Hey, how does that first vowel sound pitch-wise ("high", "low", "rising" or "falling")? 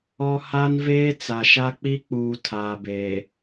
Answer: high